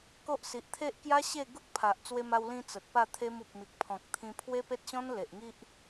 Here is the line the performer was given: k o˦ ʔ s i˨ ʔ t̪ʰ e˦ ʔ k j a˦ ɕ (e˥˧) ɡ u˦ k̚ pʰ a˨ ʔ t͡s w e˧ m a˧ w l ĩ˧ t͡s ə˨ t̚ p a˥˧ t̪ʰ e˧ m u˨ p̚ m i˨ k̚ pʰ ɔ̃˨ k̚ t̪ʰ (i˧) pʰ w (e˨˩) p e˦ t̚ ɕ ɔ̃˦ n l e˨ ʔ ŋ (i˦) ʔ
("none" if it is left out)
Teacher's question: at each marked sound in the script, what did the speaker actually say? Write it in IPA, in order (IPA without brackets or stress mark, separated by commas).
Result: e˥˧, ĩ˧, e˦, i˦